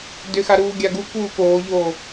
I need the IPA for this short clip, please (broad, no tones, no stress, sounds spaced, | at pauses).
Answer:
d ʏ x a ɾ uː ɡʲ a ɡ u k uː k oː ʎ oː